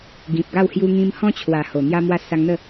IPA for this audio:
ɡ ĩ˨ p̚ ɡ a˥˧ w h j u˧ ŋ ĩ˧ m h ɔ̃˦ t͡ɕʰ w a˨˩ h o˨˩ n̪ j a˧ m w a˧ s a˧ ŋ n̪ ə˥˧

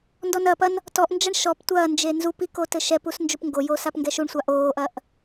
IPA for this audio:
n d ɔ n ɐː p ɐ n | t ɔ ʔ n d͡ʒ ɐ ɳ ʃ ɔ p tʷ ɐː n d͡ʒ e n z u p i k o t ɘ ʃ ɛ p u s n d͡ʒ u p ŋ ɡ o j oː s a p ŋ ɡ ɛ ʃ u ɳ sʷ a ʔ oː ʔ ɐ ʔ

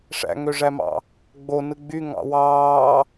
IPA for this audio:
ʂ æ̰ ŋ ø ʐ æ m ɑ̰ | ɡ͡b o n ɯ ɡ͡b y ŋ ɑ̰ w ɑː

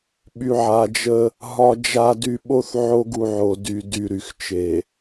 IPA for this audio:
ɓ y˨ ʕ a˨ d͡ʒ ə˦ | ɦ ɒ˨ d͡ʒ a˨ d y˨ ɓ o˦ θ ʕ o˦ ɡ u˨ ʕ o˨ d y˨ d y˨ ɾ y˨ x t͡ʃ e˨

